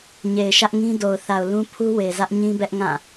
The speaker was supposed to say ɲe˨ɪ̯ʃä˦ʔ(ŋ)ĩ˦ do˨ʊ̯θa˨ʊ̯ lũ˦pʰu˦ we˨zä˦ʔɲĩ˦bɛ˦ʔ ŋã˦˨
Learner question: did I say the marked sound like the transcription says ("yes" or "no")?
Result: yes